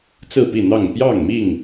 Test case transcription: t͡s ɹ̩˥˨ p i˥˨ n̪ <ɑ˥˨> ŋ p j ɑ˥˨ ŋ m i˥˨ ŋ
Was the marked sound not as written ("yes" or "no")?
no